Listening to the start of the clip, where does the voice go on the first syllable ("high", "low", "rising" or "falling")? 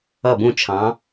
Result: falling